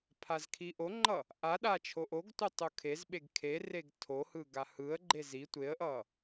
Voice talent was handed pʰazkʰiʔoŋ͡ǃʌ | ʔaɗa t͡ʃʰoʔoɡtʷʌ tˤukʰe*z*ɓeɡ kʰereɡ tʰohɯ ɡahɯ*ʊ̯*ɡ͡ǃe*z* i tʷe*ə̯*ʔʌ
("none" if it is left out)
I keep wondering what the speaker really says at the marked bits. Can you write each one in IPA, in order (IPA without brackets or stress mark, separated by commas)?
z, ə̯, z, ə̯